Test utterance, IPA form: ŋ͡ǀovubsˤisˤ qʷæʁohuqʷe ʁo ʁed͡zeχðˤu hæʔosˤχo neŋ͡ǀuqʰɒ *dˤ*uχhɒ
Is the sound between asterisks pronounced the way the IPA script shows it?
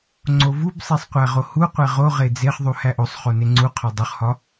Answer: yes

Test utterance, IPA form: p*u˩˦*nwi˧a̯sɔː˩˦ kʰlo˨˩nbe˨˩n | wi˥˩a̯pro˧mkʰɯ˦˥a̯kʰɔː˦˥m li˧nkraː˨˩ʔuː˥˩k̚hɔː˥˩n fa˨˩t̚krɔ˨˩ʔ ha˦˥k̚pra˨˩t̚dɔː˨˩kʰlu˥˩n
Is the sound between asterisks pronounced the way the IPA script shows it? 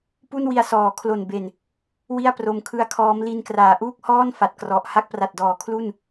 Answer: no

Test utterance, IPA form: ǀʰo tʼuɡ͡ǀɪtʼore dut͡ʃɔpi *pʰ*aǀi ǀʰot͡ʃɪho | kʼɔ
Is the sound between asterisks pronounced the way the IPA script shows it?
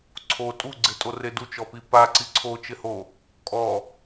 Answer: no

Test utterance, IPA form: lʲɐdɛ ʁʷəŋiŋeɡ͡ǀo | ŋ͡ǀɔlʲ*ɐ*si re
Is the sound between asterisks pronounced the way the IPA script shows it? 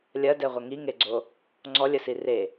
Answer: no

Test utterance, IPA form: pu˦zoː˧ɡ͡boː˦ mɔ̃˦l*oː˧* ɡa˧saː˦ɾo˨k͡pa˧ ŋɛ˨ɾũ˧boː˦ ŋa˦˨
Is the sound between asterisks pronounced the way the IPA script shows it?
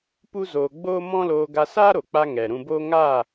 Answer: yes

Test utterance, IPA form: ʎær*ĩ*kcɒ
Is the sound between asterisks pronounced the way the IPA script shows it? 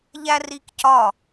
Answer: no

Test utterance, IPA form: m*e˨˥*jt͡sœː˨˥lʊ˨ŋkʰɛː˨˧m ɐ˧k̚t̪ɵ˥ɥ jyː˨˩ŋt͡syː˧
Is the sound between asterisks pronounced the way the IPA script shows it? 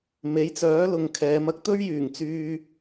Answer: yes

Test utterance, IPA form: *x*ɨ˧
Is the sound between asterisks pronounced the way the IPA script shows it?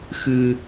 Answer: yes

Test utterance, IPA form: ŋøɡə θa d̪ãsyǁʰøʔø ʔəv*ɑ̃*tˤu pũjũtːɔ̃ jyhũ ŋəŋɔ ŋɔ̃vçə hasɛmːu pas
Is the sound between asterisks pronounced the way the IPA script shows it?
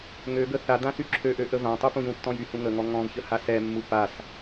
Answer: no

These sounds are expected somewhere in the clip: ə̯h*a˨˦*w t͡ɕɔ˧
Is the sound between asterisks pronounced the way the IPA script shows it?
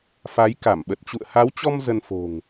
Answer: yes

